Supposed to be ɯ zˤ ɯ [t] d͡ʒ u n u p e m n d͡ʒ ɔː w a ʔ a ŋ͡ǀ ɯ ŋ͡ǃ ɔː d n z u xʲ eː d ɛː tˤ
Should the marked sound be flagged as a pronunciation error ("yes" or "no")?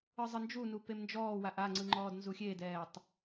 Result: yes